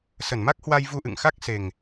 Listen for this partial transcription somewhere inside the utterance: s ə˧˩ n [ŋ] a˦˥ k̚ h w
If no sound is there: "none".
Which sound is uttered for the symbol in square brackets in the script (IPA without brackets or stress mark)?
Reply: m